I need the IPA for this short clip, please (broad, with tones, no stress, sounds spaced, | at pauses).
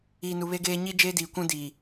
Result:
iː˨ n u˨ β e˦ ɡ eː˦ ɲ i˦ d͡ʒ eː˦ d i˨ kʷ ũ˦ d iː˨